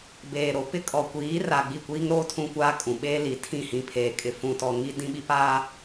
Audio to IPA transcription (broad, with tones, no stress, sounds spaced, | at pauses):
b eː˨ ɾ o˨ p ɪ˦ kʼ ɔ˨ kʷ iː˨˦ r a˨ ɡ͡b i˦˨ kʷ iː˦ ŋ ɾ oː˦ tʰ ũ˦ kʷ aː˦ kʼ ũ˨ ɓ eː˦ l i˨ tʰ ĩ˦˨ h ĩ˨ pʰ eː˨ kʼ ɪ˨ f ũ˨ t ɔ˨ ŋ i˦ d ĩ˦ ɓ i˦ p aː˦